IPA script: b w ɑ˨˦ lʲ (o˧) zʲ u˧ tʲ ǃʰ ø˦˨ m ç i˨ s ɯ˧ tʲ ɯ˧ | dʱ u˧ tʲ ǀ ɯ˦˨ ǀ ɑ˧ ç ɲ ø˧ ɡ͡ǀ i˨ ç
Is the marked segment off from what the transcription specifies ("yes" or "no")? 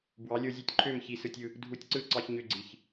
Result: no